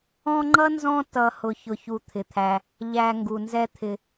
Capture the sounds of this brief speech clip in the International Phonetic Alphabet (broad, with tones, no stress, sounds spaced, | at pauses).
ɔ̃˦ ŋ͡ǃ ʌ˥ n z ɔ̃˦ t ʌ˨ h ʊ˨ ç ʊ˨ ç u˨ t̪ʰ ɪ˩ t̪ʰ æ˨ | ʎ æ˨ ŋ ɡ u˩ n z ɛ˦ t̪ʰ ɪ˨